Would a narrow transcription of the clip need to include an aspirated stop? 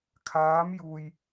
yes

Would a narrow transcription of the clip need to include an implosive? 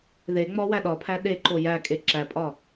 yes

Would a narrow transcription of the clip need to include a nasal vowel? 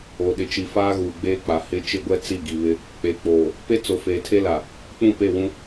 yes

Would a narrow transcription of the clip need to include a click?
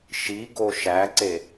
yes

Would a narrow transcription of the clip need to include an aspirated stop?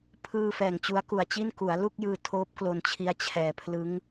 yes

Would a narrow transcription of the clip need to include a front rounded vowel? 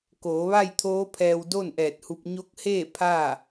no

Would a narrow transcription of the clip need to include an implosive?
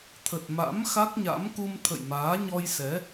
no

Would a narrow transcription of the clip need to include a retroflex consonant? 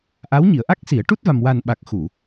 yes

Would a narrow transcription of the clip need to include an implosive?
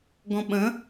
yes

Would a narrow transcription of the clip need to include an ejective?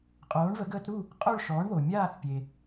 yes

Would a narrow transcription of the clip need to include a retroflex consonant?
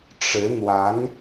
yes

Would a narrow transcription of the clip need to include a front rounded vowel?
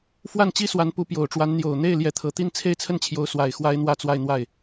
no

